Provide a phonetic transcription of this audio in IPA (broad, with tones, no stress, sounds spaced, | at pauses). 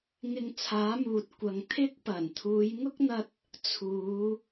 ŋ ɪ˧ ŋ t͡sʰ aː˨˥ m uː˨ t̚ kʷ ɐ˨ ŋ t̪ʰ ɪ˥ k̚ p ɐ˨˩ n t̪ʰ uː˨˧ j ŋ ʊ˥ k̚ n̪ ɐ˧ t̚ | t͡sʰ uː˨˧